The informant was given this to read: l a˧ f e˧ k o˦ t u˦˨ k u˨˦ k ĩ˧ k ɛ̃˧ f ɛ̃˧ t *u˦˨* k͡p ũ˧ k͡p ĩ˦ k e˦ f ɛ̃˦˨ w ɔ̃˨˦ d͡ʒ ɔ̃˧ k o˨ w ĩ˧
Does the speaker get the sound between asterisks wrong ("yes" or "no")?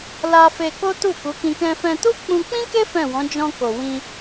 yes